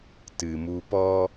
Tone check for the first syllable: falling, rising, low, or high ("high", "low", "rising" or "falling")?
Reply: low